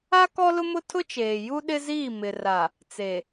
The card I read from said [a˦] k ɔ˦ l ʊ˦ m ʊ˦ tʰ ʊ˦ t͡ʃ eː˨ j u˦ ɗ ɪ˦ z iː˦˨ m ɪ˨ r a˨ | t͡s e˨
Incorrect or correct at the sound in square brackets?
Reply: correct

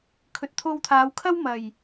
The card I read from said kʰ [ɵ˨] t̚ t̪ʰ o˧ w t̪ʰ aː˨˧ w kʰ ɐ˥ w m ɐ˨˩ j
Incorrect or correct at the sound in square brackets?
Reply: correct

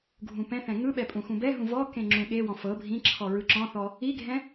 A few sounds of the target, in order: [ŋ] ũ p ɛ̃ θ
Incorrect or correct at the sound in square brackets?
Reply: incorrect: ɡʱ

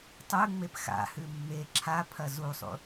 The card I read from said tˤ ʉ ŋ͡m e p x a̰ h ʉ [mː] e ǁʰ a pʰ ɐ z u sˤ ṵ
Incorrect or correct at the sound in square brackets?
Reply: correct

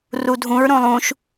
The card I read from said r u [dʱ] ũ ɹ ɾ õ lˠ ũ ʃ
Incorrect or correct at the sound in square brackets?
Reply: correct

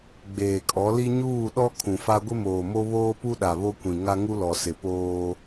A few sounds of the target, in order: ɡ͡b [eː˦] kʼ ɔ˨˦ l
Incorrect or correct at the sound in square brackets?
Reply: incorrect: eː˨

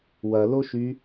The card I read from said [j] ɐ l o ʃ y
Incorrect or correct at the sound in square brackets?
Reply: incorrect: w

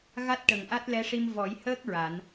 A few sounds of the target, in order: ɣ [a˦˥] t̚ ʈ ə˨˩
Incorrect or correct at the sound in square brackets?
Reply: correct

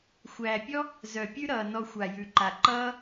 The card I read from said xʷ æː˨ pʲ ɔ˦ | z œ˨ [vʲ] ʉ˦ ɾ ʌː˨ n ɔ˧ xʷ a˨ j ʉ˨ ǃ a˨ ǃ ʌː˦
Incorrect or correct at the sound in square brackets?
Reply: incorrect: pʲ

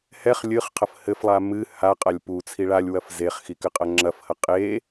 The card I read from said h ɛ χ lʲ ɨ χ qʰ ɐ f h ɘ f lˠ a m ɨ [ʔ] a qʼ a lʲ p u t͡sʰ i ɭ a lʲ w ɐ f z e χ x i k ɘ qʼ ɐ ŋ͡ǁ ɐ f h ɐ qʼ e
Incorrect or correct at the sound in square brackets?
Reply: incorrect: h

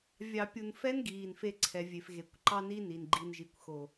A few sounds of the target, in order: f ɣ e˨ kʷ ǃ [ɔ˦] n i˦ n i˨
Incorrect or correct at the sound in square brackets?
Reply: incorrect: ɑ˦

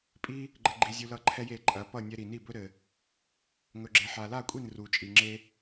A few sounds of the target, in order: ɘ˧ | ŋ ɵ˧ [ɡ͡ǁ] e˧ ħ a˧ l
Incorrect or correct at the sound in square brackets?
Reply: correct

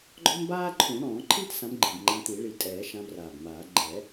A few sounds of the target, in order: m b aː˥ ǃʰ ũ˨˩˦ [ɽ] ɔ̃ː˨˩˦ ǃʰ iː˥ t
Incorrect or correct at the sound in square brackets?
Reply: correct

